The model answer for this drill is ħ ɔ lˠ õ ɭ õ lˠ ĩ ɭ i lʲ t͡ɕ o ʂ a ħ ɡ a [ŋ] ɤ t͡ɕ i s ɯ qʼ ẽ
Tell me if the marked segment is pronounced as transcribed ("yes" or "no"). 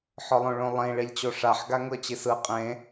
yes